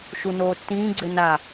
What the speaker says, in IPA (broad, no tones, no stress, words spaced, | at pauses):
ʃunoːtːĩː ɡ͡ǀɘna